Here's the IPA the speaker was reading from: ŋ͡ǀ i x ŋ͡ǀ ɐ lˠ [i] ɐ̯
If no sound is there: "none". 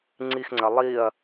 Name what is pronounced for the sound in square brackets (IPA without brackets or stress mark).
i